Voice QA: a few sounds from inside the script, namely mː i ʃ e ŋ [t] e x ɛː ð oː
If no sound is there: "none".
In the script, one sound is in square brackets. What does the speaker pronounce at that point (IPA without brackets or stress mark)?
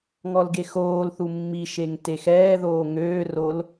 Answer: t